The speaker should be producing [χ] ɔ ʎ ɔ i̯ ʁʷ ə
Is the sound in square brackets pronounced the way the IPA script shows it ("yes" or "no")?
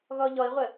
no